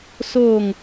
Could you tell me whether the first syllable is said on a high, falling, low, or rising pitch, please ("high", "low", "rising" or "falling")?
falling